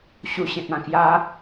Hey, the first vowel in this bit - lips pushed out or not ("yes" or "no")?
yes